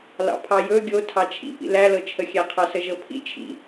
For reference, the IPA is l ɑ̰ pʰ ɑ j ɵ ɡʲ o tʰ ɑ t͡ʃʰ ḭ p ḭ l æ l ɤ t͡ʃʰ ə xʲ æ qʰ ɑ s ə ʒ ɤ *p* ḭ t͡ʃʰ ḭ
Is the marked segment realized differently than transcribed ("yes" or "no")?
yes